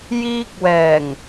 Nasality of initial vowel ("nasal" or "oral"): oral